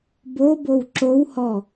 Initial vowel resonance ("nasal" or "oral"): oral